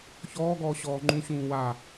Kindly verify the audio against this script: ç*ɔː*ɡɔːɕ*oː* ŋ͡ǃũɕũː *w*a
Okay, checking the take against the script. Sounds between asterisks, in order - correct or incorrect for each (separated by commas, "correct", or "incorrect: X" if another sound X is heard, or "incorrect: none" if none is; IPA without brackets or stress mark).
correct, incorrect: ɔː, correct